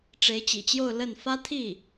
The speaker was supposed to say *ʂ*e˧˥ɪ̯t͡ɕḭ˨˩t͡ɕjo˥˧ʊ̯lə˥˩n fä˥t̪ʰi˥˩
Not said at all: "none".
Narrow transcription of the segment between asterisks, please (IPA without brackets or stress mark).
ʈ͡ʂ